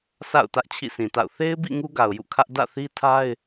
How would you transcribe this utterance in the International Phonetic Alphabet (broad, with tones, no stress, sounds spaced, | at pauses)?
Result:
sʰ a̰˦˨ ʊ̯ t ä˦ ʔ t͡ɕʰ ḭ˦˨ sʰ ĩ˨ t a̰˦˨ ʊ̯ θ e˦ ɪ̯ b ḭ˦˨ ŋ u˦ ɡ a˨ ʊ̯ j ṵ˦˨ kʰ ä˦ ʔ d ä̰˦˨ θ i˦ tʰ a˦ ɪ̯